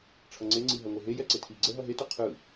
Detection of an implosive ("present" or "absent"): absent